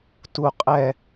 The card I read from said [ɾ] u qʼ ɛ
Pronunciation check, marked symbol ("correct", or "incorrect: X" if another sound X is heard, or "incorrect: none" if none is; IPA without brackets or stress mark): incorrect: t